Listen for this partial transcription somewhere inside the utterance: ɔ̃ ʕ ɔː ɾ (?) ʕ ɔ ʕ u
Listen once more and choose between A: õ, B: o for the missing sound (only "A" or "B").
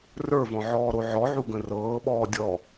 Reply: B